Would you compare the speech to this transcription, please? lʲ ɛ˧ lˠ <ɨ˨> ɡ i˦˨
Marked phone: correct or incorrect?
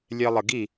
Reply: incorrect